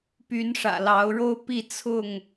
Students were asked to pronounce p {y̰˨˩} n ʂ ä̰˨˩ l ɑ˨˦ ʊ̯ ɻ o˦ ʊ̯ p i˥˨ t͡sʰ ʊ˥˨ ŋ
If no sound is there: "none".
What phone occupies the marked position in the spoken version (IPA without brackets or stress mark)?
y˨˦